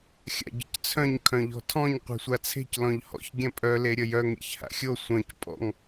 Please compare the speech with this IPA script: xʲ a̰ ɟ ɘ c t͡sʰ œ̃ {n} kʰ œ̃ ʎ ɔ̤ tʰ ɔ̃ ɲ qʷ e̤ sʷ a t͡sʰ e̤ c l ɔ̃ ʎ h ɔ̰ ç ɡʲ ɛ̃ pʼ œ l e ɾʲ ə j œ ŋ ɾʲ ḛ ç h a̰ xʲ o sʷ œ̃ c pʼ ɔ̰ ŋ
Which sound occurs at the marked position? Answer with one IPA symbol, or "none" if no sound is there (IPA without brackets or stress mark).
ɲ